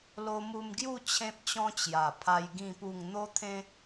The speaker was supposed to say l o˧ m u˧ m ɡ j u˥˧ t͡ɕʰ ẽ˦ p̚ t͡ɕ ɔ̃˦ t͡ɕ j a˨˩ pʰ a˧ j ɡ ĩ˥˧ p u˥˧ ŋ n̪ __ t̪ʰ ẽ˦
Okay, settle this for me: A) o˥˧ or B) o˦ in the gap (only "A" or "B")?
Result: B